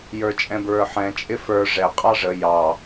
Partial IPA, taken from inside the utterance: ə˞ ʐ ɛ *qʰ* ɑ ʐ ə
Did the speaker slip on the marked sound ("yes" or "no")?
yes